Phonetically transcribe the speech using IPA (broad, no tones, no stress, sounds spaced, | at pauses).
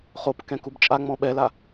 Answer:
χ o p k ɛ̃ k u b t͡ʃʼ a ŋ͡m ɔ̃ ɓ ɛ l a